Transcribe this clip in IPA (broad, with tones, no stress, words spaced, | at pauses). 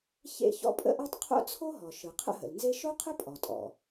çḛ˥ çɔ̰˥pʼə̰˥ʔɔ˥tˤ qʰo̰˥t͡sʰo˥ɦɔ˩ ʃɯ˩qʰə̰˥ɦə̰˩lnze˥ ʃo˥qʰə˥pʼɔ˩tʼɔ̰˩